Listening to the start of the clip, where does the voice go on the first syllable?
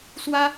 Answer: high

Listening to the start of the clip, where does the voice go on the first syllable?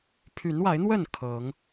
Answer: rising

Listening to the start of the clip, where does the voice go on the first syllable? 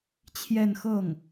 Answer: falling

